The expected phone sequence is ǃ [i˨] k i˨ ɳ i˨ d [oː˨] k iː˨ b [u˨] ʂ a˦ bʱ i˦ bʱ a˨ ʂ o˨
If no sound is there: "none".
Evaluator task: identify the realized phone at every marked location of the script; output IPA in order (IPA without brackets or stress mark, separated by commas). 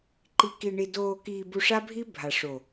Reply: i˨, oː˨, u˨